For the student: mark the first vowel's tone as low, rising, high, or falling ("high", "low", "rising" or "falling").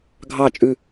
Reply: falling